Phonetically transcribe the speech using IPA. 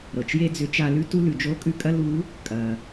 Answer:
ɾɤ˩t͡ʃje˥ d͡zʏ˧˥t͡ʃa˧lʉ˥ tu˥lʉ˩ d͡ʒo˧˥kʼʉ˧kʼɐ˥ lu˧˥ | kʼɐ˩

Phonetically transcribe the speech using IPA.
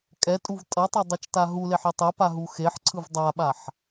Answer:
kʼɛtʼuv tʼʌtˤʌ dˤɛt͡ʃtaɦuleħ etˤɛpa ɦuxeħǀʰɯv dˤaɓaħ

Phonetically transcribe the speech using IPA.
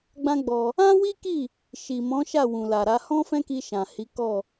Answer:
ɡ͡bã˦ɡ͡bɔ˧ | ã˦wi˦ki˦˨ | ʃi˨mɔ̃˨˦ ʃa˦˨wũ˨la˨ɾa˨˦ hɔ̃˦fɛ̃˦ki˧ ʃã˨hi˨˦ kɔ˦˨

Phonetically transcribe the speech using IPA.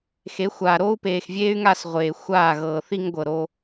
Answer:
xe˨˦xʷaː˨ ɾoː˦u̯peː˨xvʲeː˦y̯ŋa˦˨s ʁʷeː˨ xʷaː˦˨ɣɤː˨ θi˦ŋɡʷɤ˨ ɾo˦

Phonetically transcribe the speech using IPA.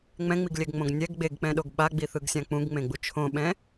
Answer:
ŋ͡mɛ̃ŋ͡miɡlʲɛɡŋ͡mõɡ nʲɛɡ ɡ͡beɡk͡pɛ̃ɗoɡ ɓaɡ͡biθɯɡsʲã k͡pũɡŋ͡mẽɡ͡bu t͡ʃʰõɓɛ̃

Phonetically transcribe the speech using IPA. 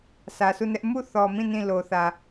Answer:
sä˨sʰu˦˨nɛ˦ʔ mu˦˨θɔ˨mĩ˦˨ nĩ˦˨ lo˨θä˨

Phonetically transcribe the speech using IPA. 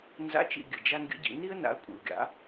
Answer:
nza̰˨˥t͡ʃḭ˨ ɡʲɘ˨d͡ʒa˥nɡʲə̰˥ɟḭ˨˥ ni˥ə̯na̰˨˥ə̯ kʷʼḭ˨ʊ̯ɡʲa̰˨˥

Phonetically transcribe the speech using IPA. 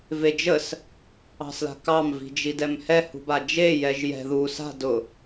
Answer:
ved͡ʒəs | ɑ̤sla̤kɑm vi̤d͡ʒidɛmhɛ hṳbad͡ʒe jɛʒjɛ̤ ðu sa̤ dʊ

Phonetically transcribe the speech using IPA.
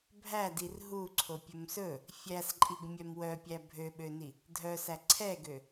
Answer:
bʱædir ɦuǀʰopʲɵm sɵ | fʲæsǃʼiɡmʲœm wœpʲæ bʱøɓøni | dʱœsæ ǀʰɛɡø

